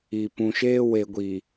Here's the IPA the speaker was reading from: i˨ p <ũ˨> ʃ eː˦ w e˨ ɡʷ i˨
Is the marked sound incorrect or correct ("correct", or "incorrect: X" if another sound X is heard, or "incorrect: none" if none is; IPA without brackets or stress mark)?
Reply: correct